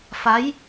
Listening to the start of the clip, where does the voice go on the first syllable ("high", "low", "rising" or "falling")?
rising